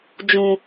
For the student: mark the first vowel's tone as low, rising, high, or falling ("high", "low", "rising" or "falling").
low